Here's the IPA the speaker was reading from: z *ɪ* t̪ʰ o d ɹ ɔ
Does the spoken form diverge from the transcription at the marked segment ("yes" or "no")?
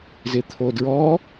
no